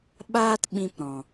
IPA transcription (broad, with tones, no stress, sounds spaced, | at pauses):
ɓ aː˦ t ɓ ĩ˧ p ɾ ɔ̃˨